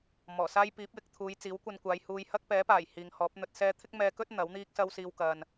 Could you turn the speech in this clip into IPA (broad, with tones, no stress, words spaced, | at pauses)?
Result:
mɔː˨˩saː˥j piː˨˥p̚jɪ˨˥k̚t̪ʰuː˨˧j t͡siː˨˥wkʷɐ˧nkʷaː˨˧jhuː˧j hɐ˥k̚pɛː˨˥paː˨˩j hiː˨ŋhɔː˨˥p̚n̪ɵ˧t̚sɛː˥ t̪ʰɪ˥k̚mɛː˧kɵ˥t̚ n̪ɐ˨˥w n̪iː˥k̚sɐ˥wsiː˧w kɐ˨n